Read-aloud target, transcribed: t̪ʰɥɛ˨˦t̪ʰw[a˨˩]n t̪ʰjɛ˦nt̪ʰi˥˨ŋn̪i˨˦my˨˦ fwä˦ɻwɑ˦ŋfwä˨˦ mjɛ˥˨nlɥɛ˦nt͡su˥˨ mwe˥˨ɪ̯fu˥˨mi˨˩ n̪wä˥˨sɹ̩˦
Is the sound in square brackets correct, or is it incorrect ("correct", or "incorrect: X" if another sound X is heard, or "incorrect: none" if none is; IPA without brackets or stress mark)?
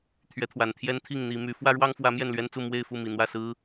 correct